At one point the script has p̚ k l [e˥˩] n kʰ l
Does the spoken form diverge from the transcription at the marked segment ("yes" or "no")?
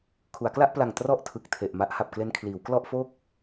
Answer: yes